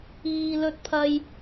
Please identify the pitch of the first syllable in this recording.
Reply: low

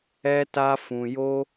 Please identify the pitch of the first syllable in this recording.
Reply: high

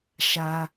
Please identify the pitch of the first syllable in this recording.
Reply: high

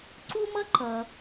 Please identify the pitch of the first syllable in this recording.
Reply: high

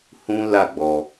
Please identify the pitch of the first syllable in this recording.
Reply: high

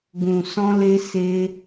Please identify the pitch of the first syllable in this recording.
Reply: low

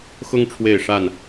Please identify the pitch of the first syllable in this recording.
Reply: high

